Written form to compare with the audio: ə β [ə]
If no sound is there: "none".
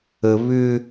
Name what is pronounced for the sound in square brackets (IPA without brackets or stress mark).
ʏ